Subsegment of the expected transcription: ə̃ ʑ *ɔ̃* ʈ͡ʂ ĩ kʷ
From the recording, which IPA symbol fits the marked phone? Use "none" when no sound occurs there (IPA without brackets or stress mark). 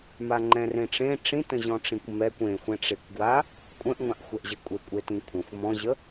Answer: ɔ̃